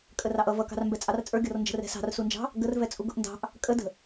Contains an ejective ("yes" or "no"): yes